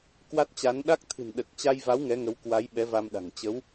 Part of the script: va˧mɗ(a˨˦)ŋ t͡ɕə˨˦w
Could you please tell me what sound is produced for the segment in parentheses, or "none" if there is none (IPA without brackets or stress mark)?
a̤˨˩